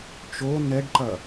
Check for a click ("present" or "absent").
present